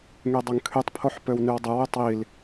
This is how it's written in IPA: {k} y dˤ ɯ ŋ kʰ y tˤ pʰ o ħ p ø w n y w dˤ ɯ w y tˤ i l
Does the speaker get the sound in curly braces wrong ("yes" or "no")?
yes